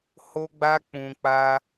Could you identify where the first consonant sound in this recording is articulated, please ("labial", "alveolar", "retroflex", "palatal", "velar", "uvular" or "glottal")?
glottal